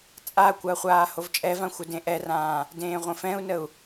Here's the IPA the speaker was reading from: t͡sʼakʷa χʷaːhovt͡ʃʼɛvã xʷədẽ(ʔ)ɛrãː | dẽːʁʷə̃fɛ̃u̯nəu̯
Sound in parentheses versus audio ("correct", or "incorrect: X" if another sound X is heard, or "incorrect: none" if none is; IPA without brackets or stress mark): correct